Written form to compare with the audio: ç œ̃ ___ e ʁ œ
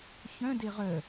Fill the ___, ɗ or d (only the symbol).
d